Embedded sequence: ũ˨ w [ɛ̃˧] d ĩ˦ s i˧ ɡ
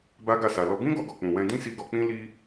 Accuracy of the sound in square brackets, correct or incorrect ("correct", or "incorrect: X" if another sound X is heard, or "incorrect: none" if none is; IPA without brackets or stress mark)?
correct